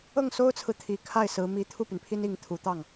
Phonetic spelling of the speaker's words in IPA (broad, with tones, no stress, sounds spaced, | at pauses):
ɤ˥˩ ŋ s o˥ ʊ̯ t͡sʰ ɹ̩˨ t̪ʰ i˨˩ kʰ a˥˩ ɪ̯ s ɹ̩˧˥ m i˧˥ t̪ʰ u˥˩ p y˩ n pʰ i˥ n i˧˥ ŋ t̪ʰ u˨˩ t̪ ɑ˥˩ ŋ